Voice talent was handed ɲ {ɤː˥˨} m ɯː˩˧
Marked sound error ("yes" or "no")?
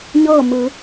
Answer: no